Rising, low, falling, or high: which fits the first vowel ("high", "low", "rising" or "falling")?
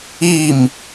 falling